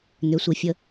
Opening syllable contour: rising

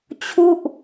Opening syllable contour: falling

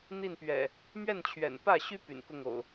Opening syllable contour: falling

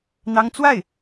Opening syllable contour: high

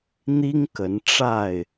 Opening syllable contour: high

